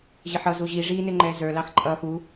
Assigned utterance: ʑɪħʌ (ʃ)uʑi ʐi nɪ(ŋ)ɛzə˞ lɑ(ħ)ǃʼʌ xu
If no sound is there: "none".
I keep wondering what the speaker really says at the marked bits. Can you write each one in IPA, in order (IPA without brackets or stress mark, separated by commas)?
z, ŋ͡ǃ, x